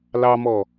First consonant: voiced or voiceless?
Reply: voiced